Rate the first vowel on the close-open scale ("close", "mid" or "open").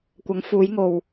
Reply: open